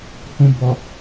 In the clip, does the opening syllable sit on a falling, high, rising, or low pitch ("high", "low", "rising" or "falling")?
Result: low